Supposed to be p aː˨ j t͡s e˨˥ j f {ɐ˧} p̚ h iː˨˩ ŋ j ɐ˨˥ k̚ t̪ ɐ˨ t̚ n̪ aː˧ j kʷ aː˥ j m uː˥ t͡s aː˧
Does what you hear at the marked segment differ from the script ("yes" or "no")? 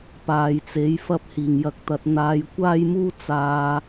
no